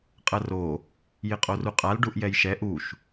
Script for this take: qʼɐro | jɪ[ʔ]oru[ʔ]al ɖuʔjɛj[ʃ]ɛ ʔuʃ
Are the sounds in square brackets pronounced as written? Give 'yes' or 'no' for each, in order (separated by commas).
no, no, yes